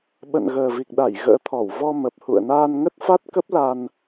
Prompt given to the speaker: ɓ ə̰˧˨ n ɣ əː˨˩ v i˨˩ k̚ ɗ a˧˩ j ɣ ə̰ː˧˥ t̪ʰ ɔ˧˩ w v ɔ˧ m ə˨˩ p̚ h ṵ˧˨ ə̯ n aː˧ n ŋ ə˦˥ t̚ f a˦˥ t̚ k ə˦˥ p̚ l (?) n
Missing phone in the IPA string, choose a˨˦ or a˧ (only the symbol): a˧